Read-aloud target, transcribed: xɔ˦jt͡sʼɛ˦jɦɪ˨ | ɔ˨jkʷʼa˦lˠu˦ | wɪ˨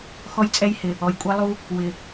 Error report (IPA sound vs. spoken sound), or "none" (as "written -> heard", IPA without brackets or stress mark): ɦ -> h